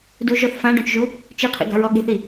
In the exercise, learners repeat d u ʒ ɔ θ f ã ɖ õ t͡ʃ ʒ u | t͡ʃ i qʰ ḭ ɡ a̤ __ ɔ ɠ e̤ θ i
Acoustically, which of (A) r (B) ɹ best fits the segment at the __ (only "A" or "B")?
B